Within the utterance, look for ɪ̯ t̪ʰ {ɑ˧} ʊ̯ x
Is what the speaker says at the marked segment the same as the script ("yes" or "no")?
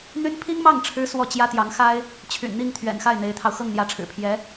yes